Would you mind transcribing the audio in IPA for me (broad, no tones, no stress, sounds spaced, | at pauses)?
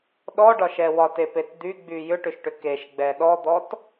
ɗ ɔ ɖ ɒ ʃ ɛ w ɒ t e p e t d̪ y ɡ͡b y j ʏ ʈ ʏ ʃ ʈ ʏ k e ʃ ɡ͡b ɛ ɗ ɔ d̪ ɔ t